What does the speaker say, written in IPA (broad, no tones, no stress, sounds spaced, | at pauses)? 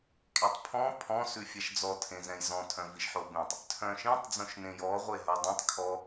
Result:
kʼ e tˤ pʰ ɔ̃ pʰ ɔ̃ s ʉ fʲ ɛ ʃ d͡z ɔ tʰ ẽ z ɛ̃ j z ɔ̃ tʰ œ̃ v i ʃ ħ o b ẽ tˤ | tʰ œ̃ ʃ ĩ tˤ d͡z õ ʃ n ẽ j ɔ ʁʷ e ɦ œ dˤ ĩ tˤ kʰ ɔ